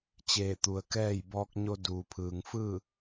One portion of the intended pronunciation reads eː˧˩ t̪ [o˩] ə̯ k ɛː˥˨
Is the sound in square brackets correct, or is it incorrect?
incorrect